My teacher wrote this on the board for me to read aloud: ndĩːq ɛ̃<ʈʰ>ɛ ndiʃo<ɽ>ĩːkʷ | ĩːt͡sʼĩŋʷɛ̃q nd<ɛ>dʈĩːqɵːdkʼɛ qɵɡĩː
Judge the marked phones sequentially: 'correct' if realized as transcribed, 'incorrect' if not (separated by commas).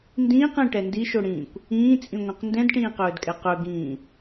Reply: incorrect, correct, incorrect